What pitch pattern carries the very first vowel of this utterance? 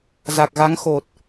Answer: low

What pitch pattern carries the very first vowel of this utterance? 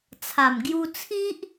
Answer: low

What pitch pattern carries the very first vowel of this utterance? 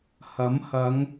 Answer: rising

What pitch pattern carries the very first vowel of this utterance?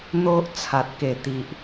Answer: high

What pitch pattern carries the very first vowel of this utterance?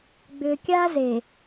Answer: low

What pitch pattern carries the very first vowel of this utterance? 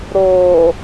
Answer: low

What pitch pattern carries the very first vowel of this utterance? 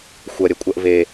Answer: low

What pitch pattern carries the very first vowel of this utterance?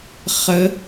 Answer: rising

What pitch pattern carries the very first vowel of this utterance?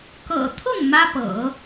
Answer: low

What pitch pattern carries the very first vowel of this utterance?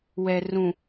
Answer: low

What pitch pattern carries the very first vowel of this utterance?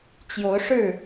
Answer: rising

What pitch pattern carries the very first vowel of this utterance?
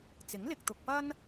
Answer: rising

